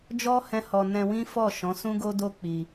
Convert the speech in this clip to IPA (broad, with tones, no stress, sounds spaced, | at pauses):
d͡ʒ ɔ˦ h ɛ̃˦ h ɔ˧ n ɛ̃˧ w ĩ˦ f ɔ˦˨ ʃ ɔ̃˨˦ s ũ˦ ɡ o˦ d o˦ k͡p i˧